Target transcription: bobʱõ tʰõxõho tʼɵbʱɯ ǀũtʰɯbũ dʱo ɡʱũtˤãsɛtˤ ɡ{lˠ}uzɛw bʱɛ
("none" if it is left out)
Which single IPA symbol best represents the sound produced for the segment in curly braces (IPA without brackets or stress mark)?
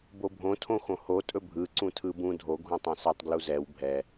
l